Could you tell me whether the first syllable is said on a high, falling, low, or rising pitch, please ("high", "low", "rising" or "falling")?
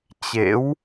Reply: rising